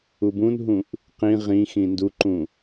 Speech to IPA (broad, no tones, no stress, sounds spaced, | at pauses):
u b ũ n ɦ ũ ʔ | q ĩ ʁ ĩ x ĩ n d u ǃ ũ